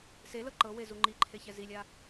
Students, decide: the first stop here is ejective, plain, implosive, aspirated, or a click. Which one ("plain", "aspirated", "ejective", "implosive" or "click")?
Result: click